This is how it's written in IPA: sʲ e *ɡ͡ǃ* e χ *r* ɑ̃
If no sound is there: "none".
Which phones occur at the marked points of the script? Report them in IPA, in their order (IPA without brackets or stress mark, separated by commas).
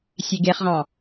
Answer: ɡ, ʁ